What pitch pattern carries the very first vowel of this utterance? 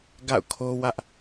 falling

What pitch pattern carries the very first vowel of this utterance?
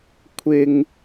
low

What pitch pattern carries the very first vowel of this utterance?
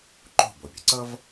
falling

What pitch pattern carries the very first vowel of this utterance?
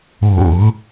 low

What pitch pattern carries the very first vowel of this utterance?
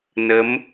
rising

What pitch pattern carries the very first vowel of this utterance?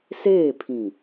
falling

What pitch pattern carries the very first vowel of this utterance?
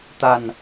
low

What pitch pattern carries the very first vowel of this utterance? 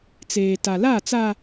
low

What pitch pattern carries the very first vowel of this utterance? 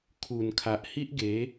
low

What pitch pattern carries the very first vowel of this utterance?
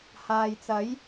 low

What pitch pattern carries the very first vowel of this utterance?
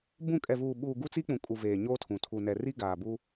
falling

